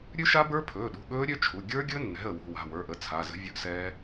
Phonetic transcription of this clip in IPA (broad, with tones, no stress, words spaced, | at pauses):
ɾʲʉ˦˥ʃa˦˥bə˞˦˥pʰɵː˩˧˩ ɗṳ˩˧˩ɠɵː˦˥ɾʲø˦˥ t͡ʃʰu˩˧˩ ɡʲə˞˦˥ɡʲɵ˦˥nːɛ̤˩˧˩ə̯ wṳ˩˧˩wa̤˩˧˩ wə˞˩˧˩ʔə˩˧˩ t͡sʰa˩˧˩zə̤˦˥ vʲɵ˦˥ʔsɛː˦˥